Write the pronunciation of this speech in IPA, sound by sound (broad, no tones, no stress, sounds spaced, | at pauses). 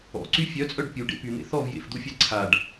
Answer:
ɔ̰ ǀ y fʲ œ t͡sʼ œ ɖ pʲ u ɖ ḛ p y n̪ ḛ θ ɔ v j ḛ f d̪ u fʲ a ǀʰ a ɖ